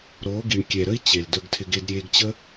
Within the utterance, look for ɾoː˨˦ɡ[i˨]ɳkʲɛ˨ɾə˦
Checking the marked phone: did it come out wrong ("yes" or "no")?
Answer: no